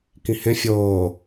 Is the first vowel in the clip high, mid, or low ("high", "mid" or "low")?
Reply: high